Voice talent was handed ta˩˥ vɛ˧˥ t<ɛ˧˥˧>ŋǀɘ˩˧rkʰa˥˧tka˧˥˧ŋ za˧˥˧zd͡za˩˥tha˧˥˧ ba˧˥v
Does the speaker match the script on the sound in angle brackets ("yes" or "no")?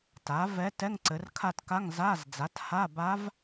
yes